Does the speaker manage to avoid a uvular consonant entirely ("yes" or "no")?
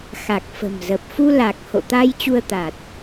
yes